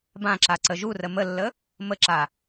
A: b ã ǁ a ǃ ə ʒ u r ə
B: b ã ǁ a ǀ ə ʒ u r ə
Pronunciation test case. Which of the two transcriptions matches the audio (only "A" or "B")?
B